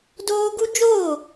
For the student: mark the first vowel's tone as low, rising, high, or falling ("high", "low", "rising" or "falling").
high